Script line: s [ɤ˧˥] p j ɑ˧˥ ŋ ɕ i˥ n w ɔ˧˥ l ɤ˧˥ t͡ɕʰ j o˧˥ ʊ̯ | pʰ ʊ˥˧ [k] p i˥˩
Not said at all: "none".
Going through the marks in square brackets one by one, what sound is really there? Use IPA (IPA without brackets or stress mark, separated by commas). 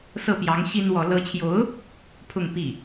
ɤ˥˩, ŋ